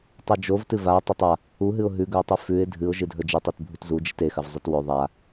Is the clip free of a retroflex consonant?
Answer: yes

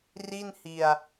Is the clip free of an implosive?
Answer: yes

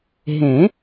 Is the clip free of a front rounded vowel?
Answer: yes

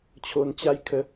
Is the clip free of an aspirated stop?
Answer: no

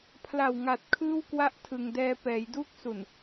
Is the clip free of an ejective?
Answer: yes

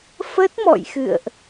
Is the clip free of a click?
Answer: yes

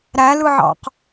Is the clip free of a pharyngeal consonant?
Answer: no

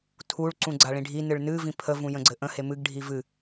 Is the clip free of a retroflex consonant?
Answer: no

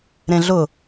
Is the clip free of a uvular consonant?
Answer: yes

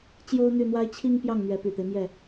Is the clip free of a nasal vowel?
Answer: yes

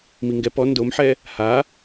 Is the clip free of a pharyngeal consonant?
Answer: no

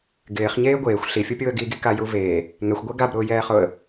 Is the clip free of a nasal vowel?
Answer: yes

